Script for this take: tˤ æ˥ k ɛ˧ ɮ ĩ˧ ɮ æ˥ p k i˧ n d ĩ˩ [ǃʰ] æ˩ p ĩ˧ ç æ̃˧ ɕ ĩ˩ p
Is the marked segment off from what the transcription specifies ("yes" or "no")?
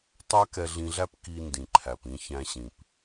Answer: no